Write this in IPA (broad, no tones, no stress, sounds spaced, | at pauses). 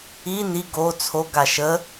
i n i ɡ o t͡sʰ o ɡ a ʃ ə